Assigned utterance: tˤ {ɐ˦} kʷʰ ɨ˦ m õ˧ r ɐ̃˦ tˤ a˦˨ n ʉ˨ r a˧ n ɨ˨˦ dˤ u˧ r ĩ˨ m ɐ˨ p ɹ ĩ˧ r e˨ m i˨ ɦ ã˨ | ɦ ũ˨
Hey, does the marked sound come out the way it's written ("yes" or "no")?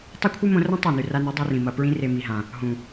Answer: yes